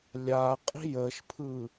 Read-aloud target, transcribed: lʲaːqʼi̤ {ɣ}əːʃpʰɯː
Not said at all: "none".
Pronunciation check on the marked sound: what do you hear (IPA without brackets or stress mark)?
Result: j